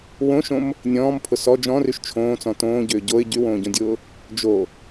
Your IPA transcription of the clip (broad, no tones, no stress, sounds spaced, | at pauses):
w õ ʃ õ m | nʲ ɔ̃ː m pʰ ʊ s ɔ d͡ʒ ɔ̃ r y ʃ t͡ʃʰ õː t͡s ɔ̃ t õː ɟ ʏː ɟ o ɪ̯ ɟ y w õː ɟ õ dʲ ʊː | d͡ʒ o